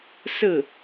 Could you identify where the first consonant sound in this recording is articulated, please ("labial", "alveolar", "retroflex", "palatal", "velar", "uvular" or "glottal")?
alveolar